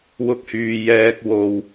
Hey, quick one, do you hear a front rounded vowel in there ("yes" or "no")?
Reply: yes